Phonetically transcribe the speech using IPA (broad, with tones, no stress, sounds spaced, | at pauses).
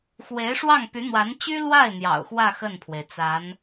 x w e˧˥ ɪ̯ ʂ w ɑ˥˩ ŋ p y˧˥ n̪ w a˧˥ n t͡ɕ y˥ l w a˥˩ ɪ̯ n̪ j ɑ̰˨˩ ʊ̯ x w ä˥˧ x ə˥˩ n pʰ w e˩ ɪ̯ t͡s a˧˥ n